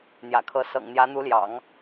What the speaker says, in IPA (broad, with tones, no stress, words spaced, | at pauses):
n̪jä̰˨˩kʰɤ˧˥ sɤ̰˨˩ŋn̪jä˧˥n̪u˧˥ljɑ̰˨˩˦ŋ